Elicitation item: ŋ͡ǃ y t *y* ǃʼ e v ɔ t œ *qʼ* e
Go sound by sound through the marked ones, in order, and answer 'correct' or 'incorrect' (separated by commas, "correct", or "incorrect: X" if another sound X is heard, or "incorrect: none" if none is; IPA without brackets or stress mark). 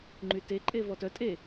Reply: incorrect: e, incorrect: tʼ